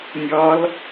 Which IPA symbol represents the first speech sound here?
nʲ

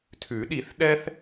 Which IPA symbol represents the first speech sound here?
tʰ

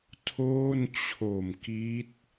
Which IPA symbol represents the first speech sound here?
tʰ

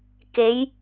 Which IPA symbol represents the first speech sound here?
k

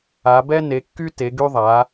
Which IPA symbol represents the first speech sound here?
a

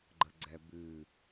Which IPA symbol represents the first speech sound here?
ɡ͡ǃ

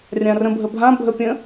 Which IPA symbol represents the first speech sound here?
rʲ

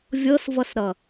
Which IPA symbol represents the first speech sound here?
vʲ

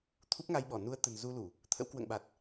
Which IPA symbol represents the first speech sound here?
t̪ʰ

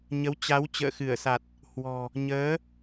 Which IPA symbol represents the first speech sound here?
ɲ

